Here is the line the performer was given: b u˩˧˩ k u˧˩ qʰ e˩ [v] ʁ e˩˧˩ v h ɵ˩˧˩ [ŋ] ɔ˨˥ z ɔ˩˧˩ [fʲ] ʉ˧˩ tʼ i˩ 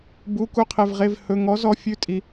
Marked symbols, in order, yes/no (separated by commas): yes, yes, yes